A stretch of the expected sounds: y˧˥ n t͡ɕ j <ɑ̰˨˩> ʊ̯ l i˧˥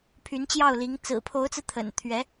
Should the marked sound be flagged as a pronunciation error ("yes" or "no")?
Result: yes